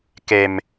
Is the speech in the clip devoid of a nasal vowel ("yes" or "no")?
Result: yes